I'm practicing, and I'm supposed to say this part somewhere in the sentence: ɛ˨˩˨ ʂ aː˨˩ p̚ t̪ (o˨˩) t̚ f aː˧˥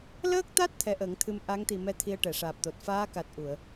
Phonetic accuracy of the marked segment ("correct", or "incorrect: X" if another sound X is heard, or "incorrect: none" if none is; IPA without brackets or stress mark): correct